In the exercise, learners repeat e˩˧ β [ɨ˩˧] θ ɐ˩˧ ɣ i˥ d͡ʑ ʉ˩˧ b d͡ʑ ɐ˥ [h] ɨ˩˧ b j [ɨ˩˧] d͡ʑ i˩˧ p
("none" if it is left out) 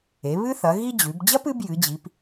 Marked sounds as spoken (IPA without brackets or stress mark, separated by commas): ɨ˥, p, ɨ˩˧